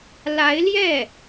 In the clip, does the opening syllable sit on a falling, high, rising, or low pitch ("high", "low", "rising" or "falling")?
rising